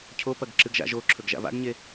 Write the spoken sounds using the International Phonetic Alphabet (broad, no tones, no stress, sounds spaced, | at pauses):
cʰ o p ɐ ɡ ǁ ɨ ɡ ʒ a̰ ʒ o ǁʰ ɵ ɡ ʒ a̰ v a̰ ɡ ɲ e